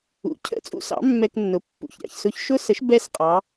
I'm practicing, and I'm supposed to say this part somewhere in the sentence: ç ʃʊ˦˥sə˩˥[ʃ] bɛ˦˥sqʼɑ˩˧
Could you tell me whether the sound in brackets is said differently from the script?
no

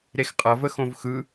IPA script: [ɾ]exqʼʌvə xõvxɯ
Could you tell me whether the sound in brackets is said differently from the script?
no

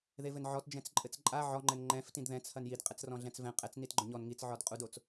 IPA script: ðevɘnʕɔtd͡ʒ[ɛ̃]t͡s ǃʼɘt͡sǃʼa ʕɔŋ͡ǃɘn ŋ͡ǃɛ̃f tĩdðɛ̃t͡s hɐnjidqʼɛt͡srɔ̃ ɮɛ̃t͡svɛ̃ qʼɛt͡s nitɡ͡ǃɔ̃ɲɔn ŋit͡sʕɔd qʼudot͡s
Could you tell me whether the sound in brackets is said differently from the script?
no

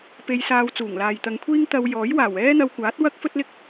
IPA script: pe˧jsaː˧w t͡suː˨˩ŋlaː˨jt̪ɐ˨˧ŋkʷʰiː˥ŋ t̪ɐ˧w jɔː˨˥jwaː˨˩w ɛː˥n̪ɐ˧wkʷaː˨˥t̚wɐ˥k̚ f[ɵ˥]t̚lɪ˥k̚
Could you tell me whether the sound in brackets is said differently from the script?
no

